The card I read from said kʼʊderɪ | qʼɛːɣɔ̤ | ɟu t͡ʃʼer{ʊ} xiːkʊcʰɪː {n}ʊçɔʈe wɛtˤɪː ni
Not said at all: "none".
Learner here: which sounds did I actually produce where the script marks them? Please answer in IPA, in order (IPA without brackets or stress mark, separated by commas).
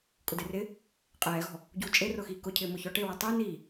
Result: ʊ, m